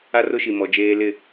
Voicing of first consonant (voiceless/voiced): voiced